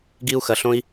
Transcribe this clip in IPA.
ɡ i˨ u̯ x ɐ˩ ɬ õ˨ i̯

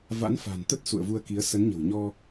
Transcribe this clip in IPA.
v a̰˧˥ n f a̤˨˩ n t̪ ə˦˥ t̚ s ṵ˧˨ ə̯ v u˧ ə̯ k i˨˦ ə̯ s ə˨˦ n ɲ ə̤˨˩ w ɲ ɔ˧

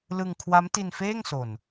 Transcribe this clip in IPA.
l ɯ˧ ŋ kʰ w a˦˥ m t i˧ n f eː˥˩ ŋ s o˨˩ n

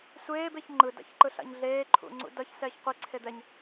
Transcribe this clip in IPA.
sʷ eː b e ç ŋ͡ǃ ɯ d a̰ ç ǃ ɯ ɬ a̰ ɲ ɮ eː ǃʰ ṵ ŋ͡ǀ ṵ d ʌ ç s ɛː ç qʷ i ǀʰ e d̪ ɛ ɲ

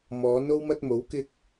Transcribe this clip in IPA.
m ɔː˨˥ n o˥ w m ɐ˥ t̚ m o˨˥ w k ɪ˥ k̚

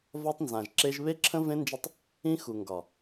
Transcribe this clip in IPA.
v ɒ˦ tˤ n z ã˨ ʒ ǁ e˦ ʒ β e˦ ǁʰ ə̃˦ v ẽ˦ n d͡ʒ ə˦˨ tˤ | ĩ˦ x u˨ ŋ ɡ ɒ˨

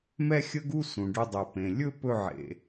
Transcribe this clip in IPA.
m ɛ˥ xʲ ə˥ ɡ u˥ s ũ˩ ɖ ʏ˧ dˤ ɵ˩ p ẽ˩ lʲ ɵ˥ p ɵ˧ ʕ ḛ˩

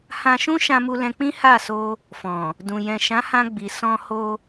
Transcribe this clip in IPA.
h ã˧ ʃ ũ˦ ʃ ã˧ m u˧ l ɛ̃˧ k͡p ĩ˦ h a˦˨ s o˧ | f ɔ̃˨ | d ũ˨ j ɛ̃˨ ʃ ã˨˦ h ã˧ ɡ͡b i˨ s ɔ̃˧ h o˧

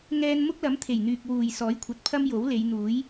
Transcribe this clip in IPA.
ŋ ɛː˧ n m ʊ˥ k̚ l ɐ˨˥ m t̪ʰ e˨˩ j n̪ yː˨ k̚ w uː˨˩ j s ɔː˨˥ j kʷʰ ɐ˨ t̚ pʰ ɐ˥ m j o˨˥ w l e˨˧ j n̪ uː˨˥ j

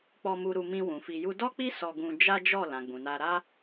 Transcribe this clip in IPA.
k͡p ɔ˧ m u˧ ɾ u˧ m ĩ˧ w ũ˨ f i˧ j u˦ d ɔ˦ k͡p i˦ s ɔ˧ ɡ ũ˧ d͡ʒ a˦ d͡ʒ ɔ˦˨ l ã˨ ɡ͡b ũ˨ n a˧ ɾ a˦

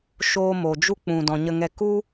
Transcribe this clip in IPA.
ʃ oː˦ m o˨ d͡ʒ u˦ k͡p ũ˨ d ɔ̃˨ ɲ ə˧ ŋ ɛ˧ k u˦

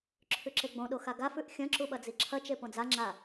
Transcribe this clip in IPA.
ǁʰ ʉ ǁ e ɡ͡b õ ɗ o x a ɡ a f ʉ ʔ xʲ ɐ̃ ǁ u ɓ ɐ d͡z i ǁʰ ɐ t͡ʃ e p õ d͡z a ŋ͡ǁ a

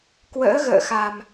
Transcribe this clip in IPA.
k w ə̰ː˧˥ ɣ ə̰ː˧˨ x a˨˩ m

